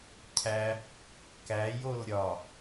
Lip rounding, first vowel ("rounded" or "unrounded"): unrounded